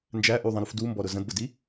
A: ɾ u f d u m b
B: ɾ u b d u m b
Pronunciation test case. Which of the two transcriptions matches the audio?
A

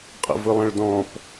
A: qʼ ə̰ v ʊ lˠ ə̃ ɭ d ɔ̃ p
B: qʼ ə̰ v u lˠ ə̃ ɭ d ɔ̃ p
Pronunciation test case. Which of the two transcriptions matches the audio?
A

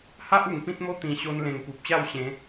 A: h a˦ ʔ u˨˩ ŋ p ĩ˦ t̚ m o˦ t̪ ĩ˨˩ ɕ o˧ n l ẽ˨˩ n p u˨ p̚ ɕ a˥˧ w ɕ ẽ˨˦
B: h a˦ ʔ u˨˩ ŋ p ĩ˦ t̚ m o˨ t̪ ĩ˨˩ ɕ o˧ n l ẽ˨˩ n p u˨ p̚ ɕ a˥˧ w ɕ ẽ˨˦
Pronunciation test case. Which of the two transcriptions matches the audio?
A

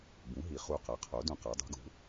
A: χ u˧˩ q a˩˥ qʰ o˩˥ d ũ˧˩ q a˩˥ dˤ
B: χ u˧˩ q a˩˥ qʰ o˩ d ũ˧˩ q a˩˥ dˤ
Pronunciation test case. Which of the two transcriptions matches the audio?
A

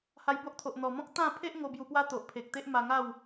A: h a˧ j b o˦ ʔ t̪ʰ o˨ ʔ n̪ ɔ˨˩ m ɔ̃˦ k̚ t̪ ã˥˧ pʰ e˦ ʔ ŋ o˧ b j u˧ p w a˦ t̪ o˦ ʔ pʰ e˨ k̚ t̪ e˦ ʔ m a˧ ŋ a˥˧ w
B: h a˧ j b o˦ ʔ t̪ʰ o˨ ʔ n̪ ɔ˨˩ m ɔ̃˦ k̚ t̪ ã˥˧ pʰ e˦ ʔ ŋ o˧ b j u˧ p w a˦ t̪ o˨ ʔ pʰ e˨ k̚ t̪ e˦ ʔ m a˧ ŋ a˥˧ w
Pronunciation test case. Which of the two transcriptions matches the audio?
B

